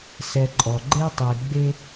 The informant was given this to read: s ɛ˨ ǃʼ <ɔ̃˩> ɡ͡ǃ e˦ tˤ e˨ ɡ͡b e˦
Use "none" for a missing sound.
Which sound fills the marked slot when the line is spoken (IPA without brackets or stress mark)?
ɔ˩